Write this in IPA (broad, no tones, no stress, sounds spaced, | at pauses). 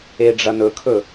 e ɖ͡ʐ ɐ n ɵ kʰ ɵ